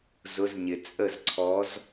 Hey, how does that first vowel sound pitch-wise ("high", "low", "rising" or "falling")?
rising